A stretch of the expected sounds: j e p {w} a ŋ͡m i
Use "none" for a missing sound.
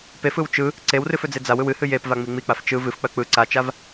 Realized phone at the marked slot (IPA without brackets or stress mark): v